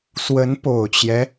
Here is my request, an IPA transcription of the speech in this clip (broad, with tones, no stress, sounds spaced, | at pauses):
s w ə˧˥ n p o˨˩ ʊ̯ t͡ɕ j ɛ˦